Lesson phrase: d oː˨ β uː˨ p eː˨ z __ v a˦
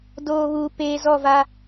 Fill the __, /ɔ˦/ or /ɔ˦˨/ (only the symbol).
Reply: ɔ˦˨